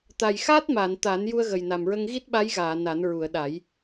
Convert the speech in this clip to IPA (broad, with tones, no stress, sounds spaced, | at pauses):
t̪ a˨˩ j x aː˦˥ t̚ m aː˨˩˨ n t̪ a˨˩˦ n j u˧ ə̯ ɣ ə˨˩ j n a˨˩ m ɹ ə˧ ŋ ɣ i˦˥ t̚ ɓ a˧˥ j ɣ aː˨˩˨ n a˨˩˦ n ɹ u˨˩˨ ə̯ ɗ a˨˩˦ j